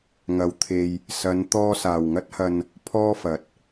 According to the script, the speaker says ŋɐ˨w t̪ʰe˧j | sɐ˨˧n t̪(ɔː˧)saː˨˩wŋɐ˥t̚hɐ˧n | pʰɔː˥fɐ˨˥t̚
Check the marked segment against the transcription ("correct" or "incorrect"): correct